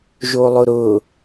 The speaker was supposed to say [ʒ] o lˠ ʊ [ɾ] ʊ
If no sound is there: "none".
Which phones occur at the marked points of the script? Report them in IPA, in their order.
ʒ, ɾ

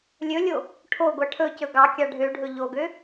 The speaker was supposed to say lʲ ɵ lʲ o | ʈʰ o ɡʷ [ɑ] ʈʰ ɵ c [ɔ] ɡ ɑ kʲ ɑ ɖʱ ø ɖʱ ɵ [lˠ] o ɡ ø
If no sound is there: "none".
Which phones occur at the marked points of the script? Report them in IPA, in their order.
ɑ, ɵ, ʎ

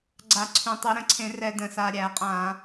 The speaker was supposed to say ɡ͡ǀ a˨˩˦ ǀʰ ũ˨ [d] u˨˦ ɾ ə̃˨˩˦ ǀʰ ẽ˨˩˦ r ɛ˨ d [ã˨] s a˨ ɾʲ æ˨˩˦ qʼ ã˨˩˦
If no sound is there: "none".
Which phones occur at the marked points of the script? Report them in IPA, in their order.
tˤ, ə̃˨

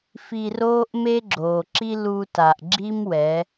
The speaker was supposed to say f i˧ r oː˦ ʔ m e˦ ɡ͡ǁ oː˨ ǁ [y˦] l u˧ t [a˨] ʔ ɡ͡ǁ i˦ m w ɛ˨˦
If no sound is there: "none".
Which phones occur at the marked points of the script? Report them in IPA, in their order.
i˦, a˨

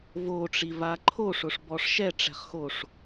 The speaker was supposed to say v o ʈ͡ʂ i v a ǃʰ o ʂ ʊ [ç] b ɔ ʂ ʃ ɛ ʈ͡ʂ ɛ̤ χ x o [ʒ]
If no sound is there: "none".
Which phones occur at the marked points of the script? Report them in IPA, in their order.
ʂ, ʂ

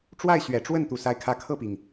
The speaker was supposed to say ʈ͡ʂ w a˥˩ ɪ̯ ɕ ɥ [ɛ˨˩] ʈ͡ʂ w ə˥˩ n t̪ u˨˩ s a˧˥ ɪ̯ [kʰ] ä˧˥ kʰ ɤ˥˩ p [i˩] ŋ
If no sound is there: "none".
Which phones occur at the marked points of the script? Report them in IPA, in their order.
ɛ˨˩, kʰ, i˩

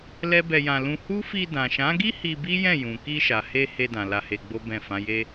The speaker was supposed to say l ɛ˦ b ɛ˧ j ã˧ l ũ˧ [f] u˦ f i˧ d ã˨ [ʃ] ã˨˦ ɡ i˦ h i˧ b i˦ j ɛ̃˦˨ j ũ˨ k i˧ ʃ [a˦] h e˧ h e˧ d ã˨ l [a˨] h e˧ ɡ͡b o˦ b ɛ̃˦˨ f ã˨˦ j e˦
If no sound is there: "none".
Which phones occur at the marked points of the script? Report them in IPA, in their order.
h, ʃ, a˨, a˧

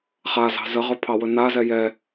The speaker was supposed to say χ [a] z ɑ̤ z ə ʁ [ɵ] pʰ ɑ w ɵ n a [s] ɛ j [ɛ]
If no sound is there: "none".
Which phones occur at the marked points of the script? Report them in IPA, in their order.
a, ɵ, z, ɛ

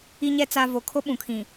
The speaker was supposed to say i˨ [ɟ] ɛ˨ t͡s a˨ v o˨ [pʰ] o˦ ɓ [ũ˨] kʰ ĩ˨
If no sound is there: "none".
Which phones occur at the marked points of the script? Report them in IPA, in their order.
ɲ, kʰ, ũ˨

